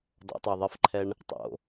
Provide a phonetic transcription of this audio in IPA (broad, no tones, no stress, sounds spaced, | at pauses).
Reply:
d ɔ̰ tˤ ə˞ ðˤ ɘ f ǃʰ ɛ ɳ | tˤ o̰